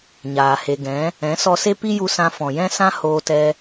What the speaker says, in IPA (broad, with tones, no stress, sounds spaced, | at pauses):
ɲ aː˨ h e˨ ɡ ɛ̃˨˦ | ɛ̃˨˦ s ɔ˧ s e˦ p i˦ j u˧ s ã˧ f ɔ̃˨ j ɛ̃˦ s ã˦ h oː˧ t ɛ˧